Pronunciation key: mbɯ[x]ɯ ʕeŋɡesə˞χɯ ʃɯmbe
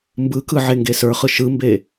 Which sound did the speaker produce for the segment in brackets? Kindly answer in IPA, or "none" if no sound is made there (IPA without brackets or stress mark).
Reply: k